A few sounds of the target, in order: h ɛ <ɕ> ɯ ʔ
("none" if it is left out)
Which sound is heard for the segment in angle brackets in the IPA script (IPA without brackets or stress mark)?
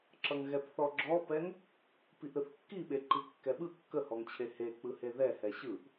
ɕ